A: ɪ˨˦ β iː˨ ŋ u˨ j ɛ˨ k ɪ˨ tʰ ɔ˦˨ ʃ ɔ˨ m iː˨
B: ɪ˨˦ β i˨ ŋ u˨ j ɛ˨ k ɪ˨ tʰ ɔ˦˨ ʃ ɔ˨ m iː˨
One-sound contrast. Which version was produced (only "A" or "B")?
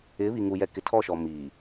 B